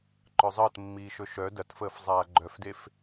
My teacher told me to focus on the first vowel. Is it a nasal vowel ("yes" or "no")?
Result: no